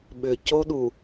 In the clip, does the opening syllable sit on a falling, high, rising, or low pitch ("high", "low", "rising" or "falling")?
low